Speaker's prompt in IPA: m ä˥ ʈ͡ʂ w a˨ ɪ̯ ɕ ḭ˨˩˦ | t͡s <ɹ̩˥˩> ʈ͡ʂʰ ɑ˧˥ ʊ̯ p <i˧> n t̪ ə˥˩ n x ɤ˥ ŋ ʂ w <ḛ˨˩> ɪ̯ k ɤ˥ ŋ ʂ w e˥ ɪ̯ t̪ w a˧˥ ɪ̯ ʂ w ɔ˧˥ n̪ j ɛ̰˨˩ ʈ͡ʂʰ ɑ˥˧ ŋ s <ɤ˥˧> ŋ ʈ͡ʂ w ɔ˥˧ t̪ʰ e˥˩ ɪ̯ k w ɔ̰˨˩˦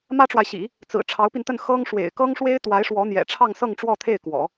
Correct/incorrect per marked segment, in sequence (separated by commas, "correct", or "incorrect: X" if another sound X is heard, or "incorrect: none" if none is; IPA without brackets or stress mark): incorrect: ɹ̩˨˩, correct, correct, correct